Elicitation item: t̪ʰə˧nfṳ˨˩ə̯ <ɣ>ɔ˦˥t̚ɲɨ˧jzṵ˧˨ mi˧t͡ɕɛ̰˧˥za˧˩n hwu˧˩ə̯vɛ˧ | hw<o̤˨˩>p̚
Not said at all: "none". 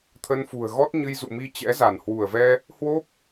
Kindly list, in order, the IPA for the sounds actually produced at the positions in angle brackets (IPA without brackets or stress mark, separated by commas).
ɣ, o˦˥